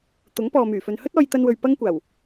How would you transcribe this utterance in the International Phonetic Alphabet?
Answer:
t̪ ʊ˨˥ ŋ p ɔː˨ m yː˨˩ f ɵ˨ n h ɵ˥ t̚ ɔː˧ j t̪ ɐ˧ n w ɵ˨ ɥ p ɐ˥ ŋ kʷ aː˨˩ w

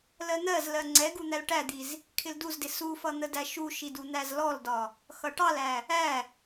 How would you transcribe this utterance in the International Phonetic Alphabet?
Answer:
l ɜ n̪ ɜ z l ɜ ŋ͡ǀ ɛ ɡ u n̪ æ l ʈ æ d̪ i z | kʰ ɪ l d u z d ɪ s u f ʌ n̪ ə d æ ʃ u ʃ i d u n̪ æ z l ɔ l d ɒ | x ʌ ʈ ɑ l æ | æ

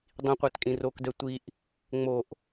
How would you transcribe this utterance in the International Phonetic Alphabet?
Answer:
dˤ ĩ qʷ æ t kʼ ĩ r o k d ɛ tʷ i ʔ | ŋ͡m o ʔ

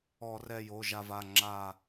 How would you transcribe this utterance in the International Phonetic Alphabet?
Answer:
ɔ˧˩˧ r ɛ˧˩ j o˩˧˩ ʒ a˧˩ v a˩˧˩ ŋ͡ǁ a˧˩

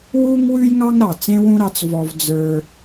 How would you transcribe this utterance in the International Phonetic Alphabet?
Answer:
w u˥ ŋ w ʉ˥ j ŋ ɑ˥ ŋ ɾ ɑ˩ t͡s ẽ˥ w ũ˥ ɾ ɑ˧ t͡s v ɔ˧ v d͡z ə˞˧

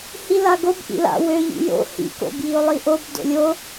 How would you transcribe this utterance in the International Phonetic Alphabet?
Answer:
h i l a ɡ o b ʔ ḭ l a̰ w ø ʎ ḭ j o̰ h ḭ k o̰ b j i o̯ lˠ i ʔ o b d o̰ lʲ o

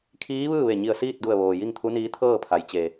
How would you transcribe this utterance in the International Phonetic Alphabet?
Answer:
kʰ iː˧˥ ʋ ɯː˥˨ ʋ e˧˩ ɲ i˧˩ ə̯ s iː˥˨ t̚ d u˧˩ ə̯ ʋ oː˩ j i˥˨ ŋ t̪ʰ u˧˥ n iː˧˥ t̪ʰ ɤː˥˨ pʰ a˩˧ j t͡ɕ e˩

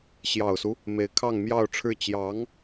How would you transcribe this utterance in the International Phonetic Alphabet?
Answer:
ɕ j ɑ˨˩ ʊ̯ s u˦ | m e˧˥ ɪ̯ kʰ ɑ˥˧ ŋ m j ɑ˥˧ ʊ̯ ʈ͡ʂʰ ɻ̩˥˩ t͡ɕ j ɑ˧˥ ŋ

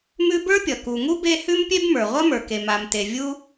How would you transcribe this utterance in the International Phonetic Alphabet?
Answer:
m ʉ˦ b ə˞˥ pʲ ʌ˩ k u˨ ŋ u˥ b e˦ h ʉ˦ m pʲ e˦ b m ə˞˩ ʁʷ ʌ˥ m ə˞˩ k e˩ m a˨ m t e˨ vʲ u˥

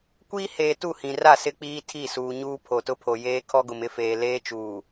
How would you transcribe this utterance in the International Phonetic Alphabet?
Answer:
kʷ iː˦ h eː˨ t u˦˨ h ĩ˨ r a˦˨ s ɪ˦ k͡p iː˦ tʰ i˦˨ s uː˨ ɲ uː˦ pʰ o˨ t ʊ˦ pʰ o˨ j eː˦ kʰ ɔ˦ ɡ ʊ˨ m ɪ˦ f eː˨ l eː˦ t͡ʃ uː˨

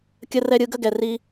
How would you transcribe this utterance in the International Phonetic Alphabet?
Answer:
kʲ ə˦ r ɛ˦ ɾʲ ɯ˦ ɡ ə˥ ɡ ɛ˨ r i˦

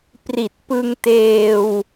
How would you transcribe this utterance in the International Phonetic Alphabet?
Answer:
p r i˨˩ t̚ p ɯ˧ ŋ t eː˧ w

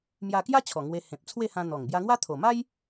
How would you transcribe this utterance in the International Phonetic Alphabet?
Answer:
m j a˧ k j a˦ t͡ɕʰ ɔ˨˩ ŋ w e˧ h ẽ˨ p̚ t͡sʰ w e˥˧ h ã˧ n̪ ɔ˨˩ ŋ b j a˧ ŋ w a˦ t̪ʰ o˨˩ m a˦ j

